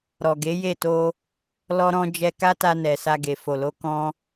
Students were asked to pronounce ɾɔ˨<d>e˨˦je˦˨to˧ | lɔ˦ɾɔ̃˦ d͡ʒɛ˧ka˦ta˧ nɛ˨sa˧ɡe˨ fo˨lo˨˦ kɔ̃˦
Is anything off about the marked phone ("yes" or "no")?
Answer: yes